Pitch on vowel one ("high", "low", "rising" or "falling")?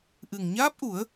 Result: low